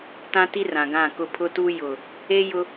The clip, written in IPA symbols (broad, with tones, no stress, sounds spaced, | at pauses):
t ã˦ t i˦ r ã˨ ɡ ã˦˨ k ʊ˦ pʰ ʊ˦ t u˦ j ʊ˨ | e˦ j ʊ˦